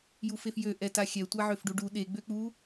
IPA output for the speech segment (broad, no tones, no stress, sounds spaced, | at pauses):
j u f e f j ø ʔ ɛ t a xʲ ɛ tʷ a ʕ ø f ɖ u ɖ u ɗ e ɡ͡b ø k͡p u